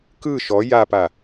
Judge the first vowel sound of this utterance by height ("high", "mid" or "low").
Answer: high